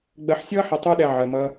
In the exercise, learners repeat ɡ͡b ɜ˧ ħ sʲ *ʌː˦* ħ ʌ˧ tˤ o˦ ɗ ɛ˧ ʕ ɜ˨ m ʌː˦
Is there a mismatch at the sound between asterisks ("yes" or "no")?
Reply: no